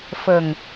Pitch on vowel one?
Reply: low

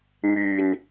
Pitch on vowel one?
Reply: low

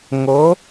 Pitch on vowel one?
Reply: rising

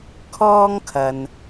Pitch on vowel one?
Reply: high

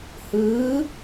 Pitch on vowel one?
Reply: rising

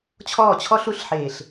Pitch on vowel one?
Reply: falling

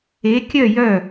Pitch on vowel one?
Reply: rising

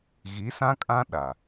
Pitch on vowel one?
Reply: rising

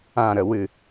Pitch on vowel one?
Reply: low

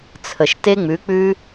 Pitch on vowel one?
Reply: low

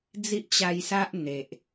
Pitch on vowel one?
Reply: high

